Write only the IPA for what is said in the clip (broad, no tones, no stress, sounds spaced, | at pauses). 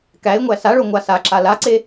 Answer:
k æ ɪ̯ ŋʷ æ s a ɭ o ŋʷ a s a ǁ a l a ǀ e